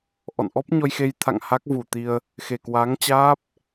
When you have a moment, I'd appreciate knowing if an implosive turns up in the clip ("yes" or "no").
no